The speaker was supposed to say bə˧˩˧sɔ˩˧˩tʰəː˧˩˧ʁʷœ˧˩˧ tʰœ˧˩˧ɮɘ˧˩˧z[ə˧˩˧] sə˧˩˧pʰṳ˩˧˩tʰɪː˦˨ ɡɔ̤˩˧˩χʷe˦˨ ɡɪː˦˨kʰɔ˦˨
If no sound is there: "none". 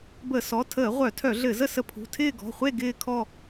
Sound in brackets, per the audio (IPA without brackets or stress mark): ə˦˨